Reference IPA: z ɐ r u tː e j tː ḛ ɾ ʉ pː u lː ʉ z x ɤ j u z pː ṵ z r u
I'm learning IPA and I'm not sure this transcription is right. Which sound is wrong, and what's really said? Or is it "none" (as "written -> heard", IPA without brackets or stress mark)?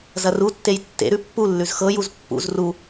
none